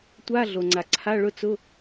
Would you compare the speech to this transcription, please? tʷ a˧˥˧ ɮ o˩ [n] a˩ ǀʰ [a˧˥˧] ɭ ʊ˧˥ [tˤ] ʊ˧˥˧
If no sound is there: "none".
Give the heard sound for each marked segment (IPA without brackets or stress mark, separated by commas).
ŋ͡ǀ, a˧˥˧, t͡s